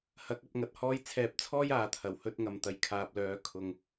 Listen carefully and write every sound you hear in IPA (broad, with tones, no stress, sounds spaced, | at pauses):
h ɐ˨˥ k̚ ɐ˨˥ p̚ ŋ ɐ˧ t̚ h ɔː˥ j t͡sʰ ɛː˧ p̚ t͡sʰ ɔː˥ j aː˨ t̪ʰ ɐ˨˩ w h ɵ˥ t̚ ŋ ɐ˨ m t̪ ɐ˨ j kʰ aː˨ p̚ l œː˨˥ kʰ ʊ˨ ŋ